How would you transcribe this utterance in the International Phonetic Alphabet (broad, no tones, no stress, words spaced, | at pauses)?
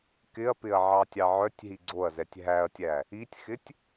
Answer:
kɪɐ̯pɪɐ̯ʕɑ tʲɑʕœtʲ ɦiɡ͡ǀoɐ̯zɛtʲ ɦæɐ̯tʲæ | itʲxɪtʲ